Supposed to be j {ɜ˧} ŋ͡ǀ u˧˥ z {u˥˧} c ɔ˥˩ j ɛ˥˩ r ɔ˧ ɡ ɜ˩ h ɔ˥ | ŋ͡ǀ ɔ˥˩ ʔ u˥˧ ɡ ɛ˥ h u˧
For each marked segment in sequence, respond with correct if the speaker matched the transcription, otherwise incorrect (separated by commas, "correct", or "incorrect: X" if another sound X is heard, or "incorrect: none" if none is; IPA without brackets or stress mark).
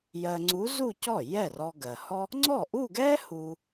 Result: correct, correct